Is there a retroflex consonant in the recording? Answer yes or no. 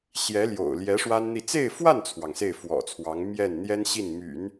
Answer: yes